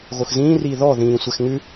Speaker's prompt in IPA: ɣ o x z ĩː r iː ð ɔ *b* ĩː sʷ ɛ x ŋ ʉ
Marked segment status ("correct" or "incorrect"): incorrect